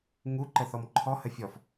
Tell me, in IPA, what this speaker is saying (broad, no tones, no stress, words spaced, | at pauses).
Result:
ŋuǃəθɔm ǃʰɔhə fʲɔf